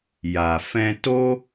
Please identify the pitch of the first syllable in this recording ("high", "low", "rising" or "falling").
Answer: low